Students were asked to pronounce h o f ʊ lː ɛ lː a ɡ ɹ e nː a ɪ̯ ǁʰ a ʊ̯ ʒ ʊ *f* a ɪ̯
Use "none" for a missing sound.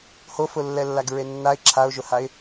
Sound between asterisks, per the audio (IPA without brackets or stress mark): h